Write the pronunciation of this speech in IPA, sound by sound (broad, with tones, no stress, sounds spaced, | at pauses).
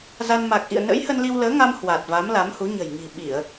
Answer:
z a˧ n m a˨˩ k̚ ʔ ḭ˧˨ ə̯ n ə̰˧˥ j h ə˧ n l i˧ w l əː˨˦ ŋ a˧ m h w a˨˩ t̚ v a˨˦ m l a˨˦ m h u˨˦ ɲ ə̤˨˩ j ŋ i̤˨˩ ɓ i˧˩˨ ə̯